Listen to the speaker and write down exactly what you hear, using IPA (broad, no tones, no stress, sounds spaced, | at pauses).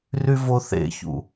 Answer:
r y v o θ ḛ ç ṵ